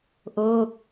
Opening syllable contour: falling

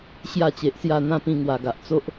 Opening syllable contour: falling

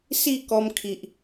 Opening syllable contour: falling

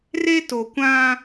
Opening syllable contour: high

